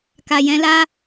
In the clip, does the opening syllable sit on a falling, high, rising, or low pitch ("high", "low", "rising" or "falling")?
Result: low